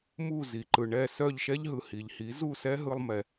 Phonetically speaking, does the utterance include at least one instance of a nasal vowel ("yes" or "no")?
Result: no